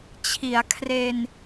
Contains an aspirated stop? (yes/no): yes